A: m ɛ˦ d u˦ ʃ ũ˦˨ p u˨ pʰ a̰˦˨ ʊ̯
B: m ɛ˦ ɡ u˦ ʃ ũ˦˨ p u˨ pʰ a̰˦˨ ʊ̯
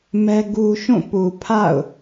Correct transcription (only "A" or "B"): B